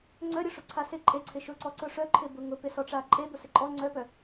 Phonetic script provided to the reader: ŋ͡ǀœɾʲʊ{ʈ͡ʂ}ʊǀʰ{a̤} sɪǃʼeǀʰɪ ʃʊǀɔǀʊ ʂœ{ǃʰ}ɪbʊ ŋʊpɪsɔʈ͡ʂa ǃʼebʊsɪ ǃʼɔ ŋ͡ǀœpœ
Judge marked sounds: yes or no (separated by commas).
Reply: no, no, yes